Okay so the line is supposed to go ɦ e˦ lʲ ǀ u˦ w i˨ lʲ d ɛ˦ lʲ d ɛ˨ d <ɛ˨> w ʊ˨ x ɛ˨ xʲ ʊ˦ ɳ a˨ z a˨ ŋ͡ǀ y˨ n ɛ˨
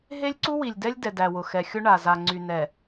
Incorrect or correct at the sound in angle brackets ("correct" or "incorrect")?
incorrect